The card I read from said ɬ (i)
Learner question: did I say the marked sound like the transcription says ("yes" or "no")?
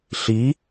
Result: yes